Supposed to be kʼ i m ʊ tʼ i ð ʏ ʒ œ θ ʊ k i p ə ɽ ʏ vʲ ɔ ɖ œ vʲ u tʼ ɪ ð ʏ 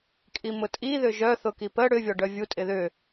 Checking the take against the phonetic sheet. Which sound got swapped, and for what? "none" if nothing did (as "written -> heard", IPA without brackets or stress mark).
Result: none